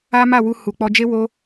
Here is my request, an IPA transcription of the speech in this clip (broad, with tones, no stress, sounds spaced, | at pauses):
a˦ m a˦˨ w u˧ h u˨ k͡p ɔ˧ d͡ʒ e˦ w o˧